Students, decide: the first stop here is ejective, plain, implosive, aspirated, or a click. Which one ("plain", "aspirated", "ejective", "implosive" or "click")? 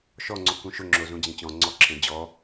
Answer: click